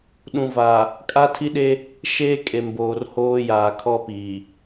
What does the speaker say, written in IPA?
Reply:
ɗ ũ˨ v a˨ | kʼ a˦ tʰ i˦ ɗ e˦ | ʃ eː˦ kʼ e˨ m b oː˨ r h oː˦ j aː˨ kʰ ɔ˦ p i˨

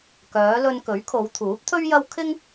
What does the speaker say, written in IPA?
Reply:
k œː˨˧ l ɵ˧ n k ɵ˨˥ ɥ kʰ o˨˧ w t̪ʰ uː˨˥ p̚ t̪ʰ ɵ˥ ɥ j ɐ˥ w kʰ ɪ˥ ŋ

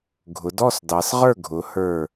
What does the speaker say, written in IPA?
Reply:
ɡʱ ʊ˩˧ d ɔ˥˨ s d ɑ˩˧ s ʁ ə˞˥˨ ɡʱ ʊ˩˧ h ə˞˧˩

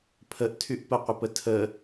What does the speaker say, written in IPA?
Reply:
pʰ ə ʔ tʰ y ʔ p ə qʷ ɪ p ə tʰ ə

